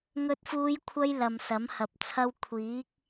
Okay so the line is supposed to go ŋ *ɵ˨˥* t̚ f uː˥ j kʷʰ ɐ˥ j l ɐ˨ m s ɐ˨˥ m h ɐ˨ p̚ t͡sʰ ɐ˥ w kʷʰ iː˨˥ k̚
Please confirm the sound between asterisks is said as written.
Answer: no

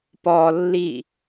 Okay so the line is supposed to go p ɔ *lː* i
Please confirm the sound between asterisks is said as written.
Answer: yes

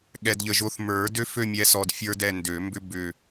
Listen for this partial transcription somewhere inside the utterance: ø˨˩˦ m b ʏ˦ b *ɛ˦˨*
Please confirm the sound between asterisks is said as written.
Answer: no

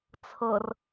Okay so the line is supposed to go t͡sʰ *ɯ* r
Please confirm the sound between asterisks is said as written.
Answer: no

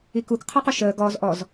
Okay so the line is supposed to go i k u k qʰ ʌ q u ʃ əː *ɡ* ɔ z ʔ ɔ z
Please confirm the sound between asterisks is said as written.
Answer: yes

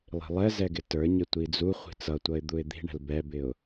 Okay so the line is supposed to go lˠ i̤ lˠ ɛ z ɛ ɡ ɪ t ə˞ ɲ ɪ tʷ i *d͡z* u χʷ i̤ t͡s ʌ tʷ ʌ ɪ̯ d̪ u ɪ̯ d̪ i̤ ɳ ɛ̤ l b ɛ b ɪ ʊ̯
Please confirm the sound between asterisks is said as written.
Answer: yes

